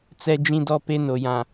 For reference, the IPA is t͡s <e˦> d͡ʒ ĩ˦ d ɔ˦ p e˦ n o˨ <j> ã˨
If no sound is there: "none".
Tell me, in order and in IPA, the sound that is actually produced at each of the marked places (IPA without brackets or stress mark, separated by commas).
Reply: ɛ˦, j